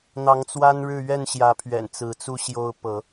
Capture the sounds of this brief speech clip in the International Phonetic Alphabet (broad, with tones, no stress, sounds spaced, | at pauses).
n̪ ɑ˨˦ ŋ t͡s w a˦ n ɻ ɻ̩˥˨ ɥ ɛ˥˨ n ɕ j ä˨˦ pʰ ɥ ɛ̰˨˩ n t͡s ɹ̩˨˦ t͡s u˦ ɕ j o˦ ʊ̯ p ɤ˨˦